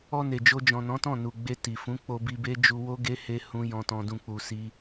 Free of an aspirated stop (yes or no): yes